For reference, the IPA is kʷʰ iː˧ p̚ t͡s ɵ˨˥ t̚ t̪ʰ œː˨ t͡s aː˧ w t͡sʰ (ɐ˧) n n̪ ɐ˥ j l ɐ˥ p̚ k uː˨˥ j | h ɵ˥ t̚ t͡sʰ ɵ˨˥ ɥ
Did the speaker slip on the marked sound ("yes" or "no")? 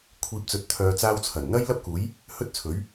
yes